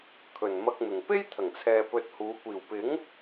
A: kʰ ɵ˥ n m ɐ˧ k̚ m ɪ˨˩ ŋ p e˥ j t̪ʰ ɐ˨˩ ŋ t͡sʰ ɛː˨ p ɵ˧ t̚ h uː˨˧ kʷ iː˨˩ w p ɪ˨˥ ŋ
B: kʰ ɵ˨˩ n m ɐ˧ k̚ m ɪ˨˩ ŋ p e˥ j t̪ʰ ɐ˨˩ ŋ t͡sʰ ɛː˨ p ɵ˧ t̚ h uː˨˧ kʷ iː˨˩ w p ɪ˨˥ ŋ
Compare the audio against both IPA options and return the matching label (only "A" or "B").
B